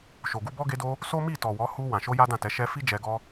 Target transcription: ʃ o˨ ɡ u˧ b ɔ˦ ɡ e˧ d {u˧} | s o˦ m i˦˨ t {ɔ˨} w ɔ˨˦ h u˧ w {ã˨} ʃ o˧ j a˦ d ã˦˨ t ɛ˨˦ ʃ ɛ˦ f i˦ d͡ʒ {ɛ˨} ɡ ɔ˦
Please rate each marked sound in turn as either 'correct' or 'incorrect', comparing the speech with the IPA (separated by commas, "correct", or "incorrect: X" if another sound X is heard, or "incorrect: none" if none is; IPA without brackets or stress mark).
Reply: incorrect: o˧, correct, correct, incorrect: ɛ˧